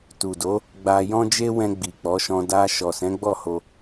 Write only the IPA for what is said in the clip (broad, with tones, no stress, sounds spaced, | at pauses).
t u˨ d o˨˦ | ɡ͡b a˧ j ɔ̃˦ d͡ʒ e˦ w ɛ̃˧ ɡ͡b i˨ k͡p ɔ˨˦ ʃ ɔ̃˧ d a˧ ʃ ɔ˨ s ɛ̃˨˦ ɡ͡b ɔ˦˨ h o˧